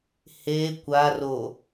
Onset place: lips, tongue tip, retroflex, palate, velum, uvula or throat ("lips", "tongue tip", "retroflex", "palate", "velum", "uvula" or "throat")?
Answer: throat